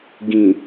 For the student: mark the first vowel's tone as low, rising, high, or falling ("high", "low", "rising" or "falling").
low